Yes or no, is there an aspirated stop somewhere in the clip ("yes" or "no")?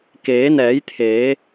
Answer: yes